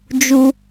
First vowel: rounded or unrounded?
rounded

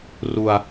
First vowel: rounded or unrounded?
rounded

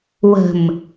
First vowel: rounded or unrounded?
unrounded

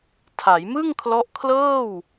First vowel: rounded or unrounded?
unrounded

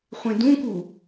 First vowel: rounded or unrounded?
unrounded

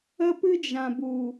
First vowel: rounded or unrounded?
unrounded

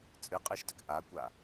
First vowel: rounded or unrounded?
unrounded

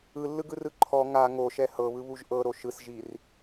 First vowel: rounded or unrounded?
unrounded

